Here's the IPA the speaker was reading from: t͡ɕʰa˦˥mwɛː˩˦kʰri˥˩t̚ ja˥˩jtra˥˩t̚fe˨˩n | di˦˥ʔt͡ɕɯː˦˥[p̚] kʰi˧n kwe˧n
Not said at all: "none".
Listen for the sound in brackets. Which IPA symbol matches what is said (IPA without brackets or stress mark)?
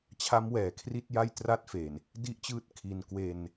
t̚